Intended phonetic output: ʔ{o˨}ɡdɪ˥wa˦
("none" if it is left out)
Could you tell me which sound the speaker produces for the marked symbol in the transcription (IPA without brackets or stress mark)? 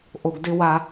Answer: o˨